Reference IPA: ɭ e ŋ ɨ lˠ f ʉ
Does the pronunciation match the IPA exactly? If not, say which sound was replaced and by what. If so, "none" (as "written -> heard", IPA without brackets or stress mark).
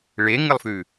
none